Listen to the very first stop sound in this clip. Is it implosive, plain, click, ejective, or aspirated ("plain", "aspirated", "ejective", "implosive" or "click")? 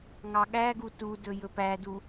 implosive